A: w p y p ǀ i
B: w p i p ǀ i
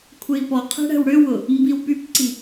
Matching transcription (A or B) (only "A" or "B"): A